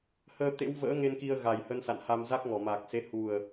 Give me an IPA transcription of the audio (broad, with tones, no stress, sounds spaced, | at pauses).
h əː˧ t̪ ḛ˧˥ w v ə̰ː˧˥ ŋ e˧ n k i˧ ə̯ ɣ a˨˩ j h ə˧ n s a̰˧˨ n h a˧ m z a˦˥ k̚ ŋ ɔ˧˩ m aː˨˩ k̚ s e˨˦ h u˨˩ ə̯